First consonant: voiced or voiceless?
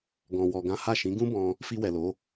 voiced